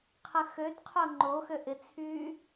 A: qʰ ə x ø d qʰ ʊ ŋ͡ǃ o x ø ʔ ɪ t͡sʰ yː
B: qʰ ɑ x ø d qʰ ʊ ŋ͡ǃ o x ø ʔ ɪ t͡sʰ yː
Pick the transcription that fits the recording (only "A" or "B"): A